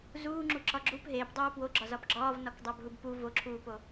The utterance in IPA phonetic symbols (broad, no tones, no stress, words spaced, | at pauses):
zuːŋ͡ǁuǁɒ ɡ͡ǁup ɦeːpdˤuː pwoɡ͡ǁɒzɒp ɡ͡ǁɒːvnɒkdˤæbɦub pu voǁʰuːpo